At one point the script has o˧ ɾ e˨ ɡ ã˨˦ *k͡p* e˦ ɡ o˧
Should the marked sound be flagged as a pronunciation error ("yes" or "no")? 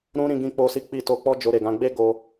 yes